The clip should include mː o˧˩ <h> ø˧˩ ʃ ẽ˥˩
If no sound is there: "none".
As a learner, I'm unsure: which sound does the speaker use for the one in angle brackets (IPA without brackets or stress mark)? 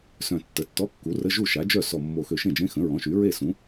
x